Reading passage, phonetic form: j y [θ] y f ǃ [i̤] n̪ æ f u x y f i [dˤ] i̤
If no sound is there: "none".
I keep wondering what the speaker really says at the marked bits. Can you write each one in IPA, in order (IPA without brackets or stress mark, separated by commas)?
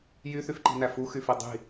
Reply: θ, i̤, dˤ